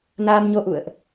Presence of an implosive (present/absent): absent